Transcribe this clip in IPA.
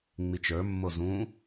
ŋ͡mit͡ʃə˞mːo zũ

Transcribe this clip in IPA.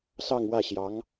sɑ˥˧ŋ wä˥˩ɕjɑ˧˥ŋ

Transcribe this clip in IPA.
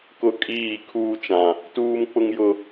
kʊ˦kʼiː˦˨ kʰuː˦t͡ʃã˨ | tuː˦mk͡pʊ˦ŋ jʊ˦

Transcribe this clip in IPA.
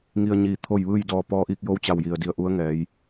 ŋi˧ə̯ɲiː˧˩ t̪ʰo˥˨jʋɯː˥˨j dɔː˧pɔː˧˥ʔiː˥˨k̚ jo˧˥wt͡ɕa˧˩w ji˩ə̯di˧˩ə̯ʔu˧˥ə̯ ŋɛː˩˧j

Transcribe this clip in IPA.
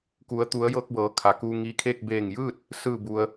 ku˩˧ə̯t̪u˩˧ə̯jɤː˧k̚ bɤː˩˧kʰa˩ kuː˧ŋi˧kʰeː˥˨k̚ beː˧˩ŋjɯː˥˨t̚ | sɯː˧˩bu˩ə̯

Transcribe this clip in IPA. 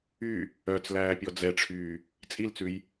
y | œt͡slæːpʲɔ d͡zɛʈ͡ʂʰyː | t͡sʼilt͡sʉj

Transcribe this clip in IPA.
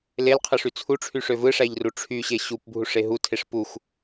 lelqʰɯʂy t͡sʰuʈ͡ʂʰyʂø vɯʂæʎru ʈ͡ʂʰyɕe ɕupbʱuʂe ɦutʰeʂ puxʷ

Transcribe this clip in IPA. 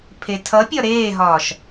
pʰetʰʌpʲɒ ɾeːɦɒːʃ

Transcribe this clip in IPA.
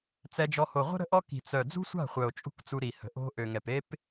t͡sɛ˧d͡ʒɔ˧ ho˨ʁʷə̤˦ ɾə̤˦ʔɔ˦ ki̤˨t͡sœ˨ d͡zṳ˦sʷa̤˦˨χʷœ˨o̯t͡ʃʼṳ˧k t͡su˧ɾi˨hə̤˨ʔo̤˦ ʔø˨ŋɛ˨p e˦p

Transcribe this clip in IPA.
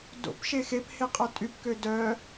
do̰pʃe xephe qʼœtʼypkø dœ

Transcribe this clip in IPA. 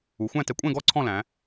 u˩˧xʷæ̃˥˧ tɛ˧kʷʼɛ̃˥˧ɡɔ˥˧ ǀʰɔ̃˥˧læ̃˩˧

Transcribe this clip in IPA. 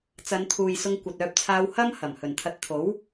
t͡sɐ˨˧nt̪ʰuː˨j sʊ˧ŋkʷɐ˨t̚œː˧p̚ t͡sʰaː˧whɐ˥mhɐ˨˩m hɵ˨˩nt̪ʰɐ˧t̚ t̪ʰo˨˥w

